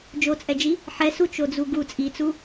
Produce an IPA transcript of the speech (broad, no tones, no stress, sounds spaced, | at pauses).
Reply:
d͡ʒ o t͡sʼ ɛ d͡ʒ i | ħ ɛ s u t͡ʃ o d͡z u ɡ u t͡sʼ i t͡s u